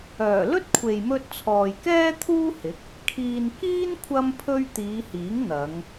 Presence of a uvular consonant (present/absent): absent